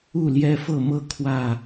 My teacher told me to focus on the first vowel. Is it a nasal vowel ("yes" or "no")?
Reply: no